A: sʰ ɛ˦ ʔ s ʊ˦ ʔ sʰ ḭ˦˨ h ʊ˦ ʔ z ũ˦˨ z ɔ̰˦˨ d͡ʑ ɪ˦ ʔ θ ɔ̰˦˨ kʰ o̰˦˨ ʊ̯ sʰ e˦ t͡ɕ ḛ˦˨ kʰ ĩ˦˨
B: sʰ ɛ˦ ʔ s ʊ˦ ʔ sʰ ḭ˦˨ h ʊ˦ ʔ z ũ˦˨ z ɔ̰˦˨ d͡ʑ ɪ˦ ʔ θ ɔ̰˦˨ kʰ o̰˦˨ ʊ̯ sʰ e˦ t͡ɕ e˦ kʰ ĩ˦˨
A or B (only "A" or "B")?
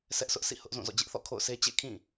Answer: A